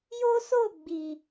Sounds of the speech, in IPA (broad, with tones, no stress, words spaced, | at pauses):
jo˦so˦˨ɡ͡bi˨